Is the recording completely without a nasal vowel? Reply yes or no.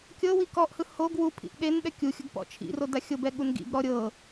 yes